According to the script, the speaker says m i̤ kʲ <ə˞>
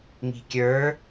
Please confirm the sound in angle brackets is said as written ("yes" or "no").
yes